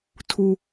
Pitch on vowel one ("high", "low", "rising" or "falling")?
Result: high